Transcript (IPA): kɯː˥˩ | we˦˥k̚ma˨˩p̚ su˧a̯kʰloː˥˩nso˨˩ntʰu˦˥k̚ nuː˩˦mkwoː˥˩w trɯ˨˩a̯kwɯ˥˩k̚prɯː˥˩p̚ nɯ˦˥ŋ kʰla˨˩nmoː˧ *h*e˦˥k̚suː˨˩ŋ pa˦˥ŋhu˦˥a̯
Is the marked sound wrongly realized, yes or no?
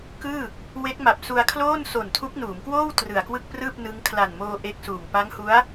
yes